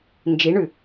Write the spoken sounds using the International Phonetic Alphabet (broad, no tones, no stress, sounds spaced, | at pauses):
n d͡ʒ i ɳ ʉ